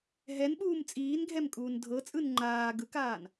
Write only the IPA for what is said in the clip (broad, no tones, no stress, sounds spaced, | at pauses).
ɦ ɛ n ɓ uː m t͡sʼ iː n ɡʱ ɛ m kʼ uː n dʱ ɤ t͡sʼ ɯ n ŋ͡ǃ aː ɡ ɯ k aː n